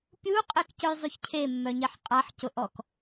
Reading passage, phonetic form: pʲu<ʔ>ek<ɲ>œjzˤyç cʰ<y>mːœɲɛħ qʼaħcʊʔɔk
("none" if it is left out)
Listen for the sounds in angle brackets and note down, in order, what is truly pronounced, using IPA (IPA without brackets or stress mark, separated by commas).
qʼ, c, e